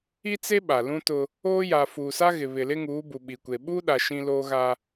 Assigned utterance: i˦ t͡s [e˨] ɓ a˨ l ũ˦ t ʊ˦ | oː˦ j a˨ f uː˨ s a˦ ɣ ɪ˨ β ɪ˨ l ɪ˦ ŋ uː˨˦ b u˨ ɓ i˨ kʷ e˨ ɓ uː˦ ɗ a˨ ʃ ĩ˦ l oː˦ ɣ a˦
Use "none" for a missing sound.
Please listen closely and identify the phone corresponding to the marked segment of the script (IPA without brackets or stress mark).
e˦